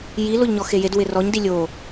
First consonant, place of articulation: palatal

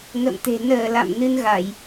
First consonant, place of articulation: velar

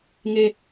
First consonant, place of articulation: velar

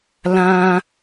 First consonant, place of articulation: alveolar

